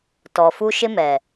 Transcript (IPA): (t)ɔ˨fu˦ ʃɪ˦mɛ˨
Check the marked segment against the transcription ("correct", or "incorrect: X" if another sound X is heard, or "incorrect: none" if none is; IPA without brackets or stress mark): correct